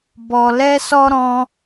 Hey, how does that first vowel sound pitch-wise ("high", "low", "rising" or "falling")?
low